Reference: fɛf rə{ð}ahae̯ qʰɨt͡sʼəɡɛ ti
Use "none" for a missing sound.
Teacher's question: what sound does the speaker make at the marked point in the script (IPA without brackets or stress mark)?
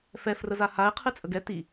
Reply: z